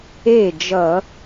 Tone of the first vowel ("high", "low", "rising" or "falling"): falling